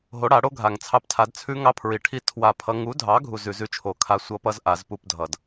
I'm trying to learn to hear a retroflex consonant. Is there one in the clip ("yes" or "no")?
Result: yes